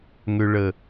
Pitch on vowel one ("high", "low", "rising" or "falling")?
low